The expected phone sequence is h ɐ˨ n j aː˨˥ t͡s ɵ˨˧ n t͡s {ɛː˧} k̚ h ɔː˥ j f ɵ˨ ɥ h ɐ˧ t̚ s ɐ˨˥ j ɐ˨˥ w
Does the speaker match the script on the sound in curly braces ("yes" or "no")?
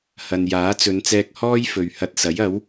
yes